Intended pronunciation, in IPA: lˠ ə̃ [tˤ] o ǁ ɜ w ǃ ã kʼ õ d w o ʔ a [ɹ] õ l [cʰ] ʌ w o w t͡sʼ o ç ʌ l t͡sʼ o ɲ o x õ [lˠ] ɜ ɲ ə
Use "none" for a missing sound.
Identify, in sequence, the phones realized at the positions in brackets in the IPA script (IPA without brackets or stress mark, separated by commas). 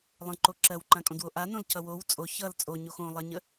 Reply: ǃ, n, cʰ, lˠ